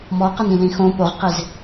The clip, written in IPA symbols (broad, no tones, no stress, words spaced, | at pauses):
mɔqɐnĩlĩ xõ poʁqez